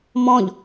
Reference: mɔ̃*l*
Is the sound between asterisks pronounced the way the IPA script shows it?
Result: no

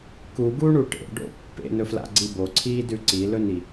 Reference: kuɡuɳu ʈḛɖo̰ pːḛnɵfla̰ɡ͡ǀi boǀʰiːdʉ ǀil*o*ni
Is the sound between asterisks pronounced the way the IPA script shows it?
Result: no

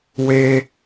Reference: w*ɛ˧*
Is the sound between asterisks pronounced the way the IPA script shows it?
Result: no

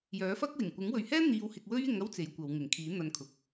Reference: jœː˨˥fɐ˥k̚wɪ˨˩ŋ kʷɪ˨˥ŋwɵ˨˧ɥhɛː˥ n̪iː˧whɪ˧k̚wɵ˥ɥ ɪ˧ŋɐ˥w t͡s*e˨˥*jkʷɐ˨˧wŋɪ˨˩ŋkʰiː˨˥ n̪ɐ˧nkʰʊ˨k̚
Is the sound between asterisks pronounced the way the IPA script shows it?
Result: yes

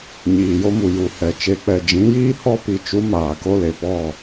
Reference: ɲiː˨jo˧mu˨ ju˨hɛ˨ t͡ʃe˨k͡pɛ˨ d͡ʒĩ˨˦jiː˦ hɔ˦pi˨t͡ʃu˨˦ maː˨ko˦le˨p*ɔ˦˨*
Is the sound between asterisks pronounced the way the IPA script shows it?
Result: yes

